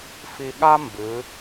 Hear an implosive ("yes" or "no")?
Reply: yes